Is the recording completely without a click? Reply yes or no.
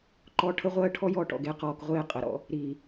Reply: no